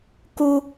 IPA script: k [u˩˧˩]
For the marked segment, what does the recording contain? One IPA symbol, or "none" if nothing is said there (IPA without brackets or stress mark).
u˥